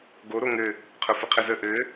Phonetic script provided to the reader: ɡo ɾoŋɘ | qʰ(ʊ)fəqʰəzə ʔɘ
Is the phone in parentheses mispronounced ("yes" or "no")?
no